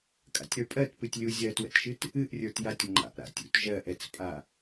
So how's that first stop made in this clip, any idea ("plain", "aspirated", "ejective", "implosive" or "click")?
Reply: ejective